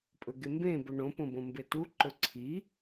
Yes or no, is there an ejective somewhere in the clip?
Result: yes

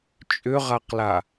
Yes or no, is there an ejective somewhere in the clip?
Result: yes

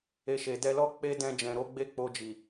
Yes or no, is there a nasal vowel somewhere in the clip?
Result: yes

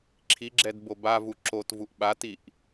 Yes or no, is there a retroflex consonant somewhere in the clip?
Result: no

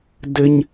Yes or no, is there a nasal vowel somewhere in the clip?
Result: no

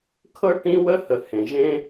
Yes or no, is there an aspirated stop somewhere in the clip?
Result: yes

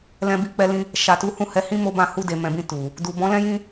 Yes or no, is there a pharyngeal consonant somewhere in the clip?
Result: no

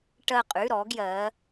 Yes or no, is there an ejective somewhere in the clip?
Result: yes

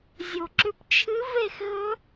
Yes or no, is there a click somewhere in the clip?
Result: yes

